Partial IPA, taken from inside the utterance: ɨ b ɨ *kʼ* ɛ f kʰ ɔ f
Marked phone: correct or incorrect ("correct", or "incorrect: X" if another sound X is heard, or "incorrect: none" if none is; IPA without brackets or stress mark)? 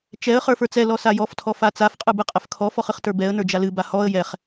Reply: incorrect: qʼ